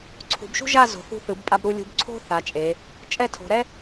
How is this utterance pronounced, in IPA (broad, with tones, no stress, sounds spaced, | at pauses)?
ǀʰ ṳ˩˧ b ʃ ṳ˥ ʒ a˥˧ z o̤˩˧ θ ṳ˧ θ ɯ˩˧ b pʼ a˧ b ɾ u˧ lʲ ṳ˧ b ǀʰ o̤˥ θ a˩˧ t͡ʃʼ e˩˧ | t͡ʃʼ ɛ˥˧ tʰ o̤˩˧ ɾ ɛ˥